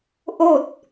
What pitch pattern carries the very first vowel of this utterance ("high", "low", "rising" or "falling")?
falling